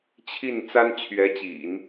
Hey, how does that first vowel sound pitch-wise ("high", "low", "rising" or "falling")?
falling